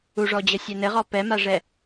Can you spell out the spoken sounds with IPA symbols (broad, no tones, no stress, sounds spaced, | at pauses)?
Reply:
u ʐ ɔ d͡ʑ ə sʲ ɛ n ɘ ʁ ɔ p ɛ m a ʐ ɛ